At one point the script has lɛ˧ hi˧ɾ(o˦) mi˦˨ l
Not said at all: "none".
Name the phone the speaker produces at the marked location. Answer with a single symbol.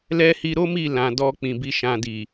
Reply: o˦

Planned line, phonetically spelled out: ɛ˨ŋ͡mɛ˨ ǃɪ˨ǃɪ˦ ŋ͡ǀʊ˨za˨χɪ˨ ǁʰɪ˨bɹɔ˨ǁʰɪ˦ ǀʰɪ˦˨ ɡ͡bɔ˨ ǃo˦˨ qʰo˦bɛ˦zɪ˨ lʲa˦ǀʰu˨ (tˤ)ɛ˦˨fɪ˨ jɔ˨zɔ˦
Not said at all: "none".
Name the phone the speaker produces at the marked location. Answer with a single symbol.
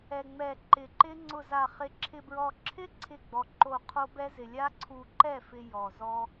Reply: ǃ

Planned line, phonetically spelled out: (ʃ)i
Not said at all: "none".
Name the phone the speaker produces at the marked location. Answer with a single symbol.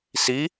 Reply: s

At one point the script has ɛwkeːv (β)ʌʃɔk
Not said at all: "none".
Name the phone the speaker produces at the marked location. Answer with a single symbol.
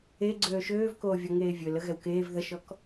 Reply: ð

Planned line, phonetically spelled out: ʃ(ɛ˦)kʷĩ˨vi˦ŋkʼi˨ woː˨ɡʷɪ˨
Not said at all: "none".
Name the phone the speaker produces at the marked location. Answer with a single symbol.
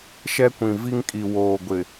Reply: ɛ˦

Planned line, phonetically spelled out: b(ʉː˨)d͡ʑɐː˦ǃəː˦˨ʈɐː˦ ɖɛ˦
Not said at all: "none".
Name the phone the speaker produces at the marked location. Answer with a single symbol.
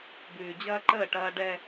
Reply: ʉː˨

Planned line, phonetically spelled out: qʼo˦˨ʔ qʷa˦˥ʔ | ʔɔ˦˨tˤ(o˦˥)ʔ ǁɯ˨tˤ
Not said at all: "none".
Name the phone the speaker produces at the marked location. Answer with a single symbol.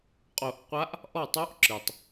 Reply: o˦˥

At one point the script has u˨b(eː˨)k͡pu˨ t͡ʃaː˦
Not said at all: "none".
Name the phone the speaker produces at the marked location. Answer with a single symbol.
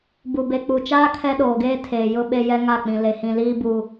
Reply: e˨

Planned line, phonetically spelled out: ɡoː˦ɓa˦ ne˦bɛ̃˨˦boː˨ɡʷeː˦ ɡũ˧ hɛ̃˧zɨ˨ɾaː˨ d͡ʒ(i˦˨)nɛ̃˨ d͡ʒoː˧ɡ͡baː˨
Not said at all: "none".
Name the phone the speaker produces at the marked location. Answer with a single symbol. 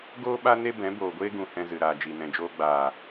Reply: i˨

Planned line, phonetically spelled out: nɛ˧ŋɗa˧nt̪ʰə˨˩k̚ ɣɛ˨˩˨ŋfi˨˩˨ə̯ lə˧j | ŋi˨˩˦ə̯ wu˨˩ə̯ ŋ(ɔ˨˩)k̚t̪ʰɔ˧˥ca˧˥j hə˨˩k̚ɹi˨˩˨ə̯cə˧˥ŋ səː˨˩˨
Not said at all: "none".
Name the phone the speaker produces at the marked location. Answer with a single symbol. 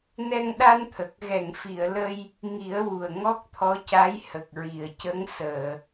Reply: ɔ˦˥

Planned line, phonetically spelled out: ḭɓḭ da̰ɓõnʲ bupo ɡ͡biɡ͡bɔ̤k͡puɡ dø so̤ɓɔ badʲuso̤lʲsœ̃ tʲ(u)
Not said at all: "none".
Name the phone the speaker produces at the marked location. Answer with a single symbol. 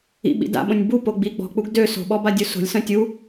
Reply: u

